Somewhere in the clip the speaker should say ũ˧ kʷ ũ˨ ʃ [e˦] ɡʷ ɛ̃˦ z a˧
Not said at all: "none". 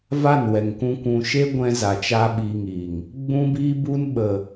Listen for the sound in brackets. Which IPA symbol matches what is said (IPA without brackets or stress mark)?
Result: e˦